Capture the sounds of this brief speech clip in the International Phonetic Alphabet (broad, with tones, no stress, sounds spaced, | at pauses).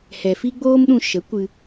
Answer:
h ɛ˨ f i˦ ɡ͡b oː˦ m ɗ ũ˧ ʃ ə˨˦ kʷ ɨ˧